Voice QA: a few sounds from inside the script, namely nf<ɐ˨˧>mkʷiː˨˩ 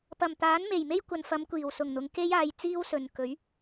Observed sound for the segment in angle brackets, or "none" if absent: ɐ˨˧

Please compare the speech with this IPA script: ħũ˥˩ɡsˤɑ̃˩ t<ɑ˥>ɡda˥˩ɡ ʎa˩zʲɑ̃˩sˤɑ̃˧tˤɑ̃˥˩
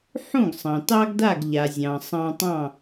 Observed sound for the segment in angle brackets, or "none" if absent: ɑ˥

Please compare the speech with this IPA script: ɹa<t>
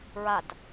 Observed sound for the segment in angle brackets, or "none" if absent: t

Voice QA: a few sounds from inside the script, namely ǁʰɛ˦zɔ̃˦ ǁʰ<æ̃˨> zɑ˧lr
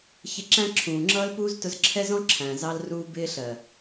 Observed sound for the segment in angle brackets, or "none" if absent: æ̃˨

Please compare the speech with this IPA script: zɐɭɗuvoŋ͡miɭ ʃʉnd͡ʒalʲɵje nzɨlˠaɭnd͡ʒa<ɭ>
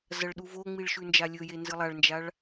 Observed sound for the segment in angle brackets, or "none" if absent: ɭ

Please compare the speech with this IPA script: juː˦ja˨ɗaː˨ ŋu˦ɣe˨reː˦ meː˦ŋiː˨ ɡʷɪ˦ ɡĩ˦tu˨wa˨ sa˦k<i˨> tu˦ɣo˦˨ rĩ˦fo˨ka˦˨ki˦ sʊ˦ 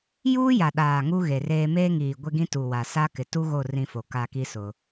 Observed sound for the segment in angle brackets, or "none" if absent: ɪ˨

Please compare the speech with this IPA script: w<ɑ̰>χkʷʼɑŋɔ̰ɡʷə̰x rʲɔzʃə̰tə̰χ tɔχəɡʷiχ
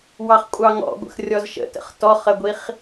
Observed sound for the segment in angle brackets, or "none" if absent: ɑ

